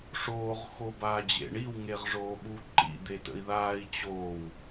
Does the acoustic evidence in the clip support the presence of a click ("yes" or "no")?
yes